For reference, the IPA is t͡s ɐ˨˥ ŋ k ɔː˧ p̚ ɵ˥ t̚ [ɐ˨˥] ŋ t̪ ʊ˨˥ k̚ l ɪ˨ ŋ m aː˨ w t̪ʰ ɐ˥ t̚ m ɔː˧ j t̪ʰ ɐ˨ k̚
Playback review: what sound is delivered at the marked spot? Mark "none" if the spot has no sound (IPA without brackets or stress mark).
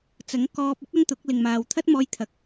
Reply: ɐ˥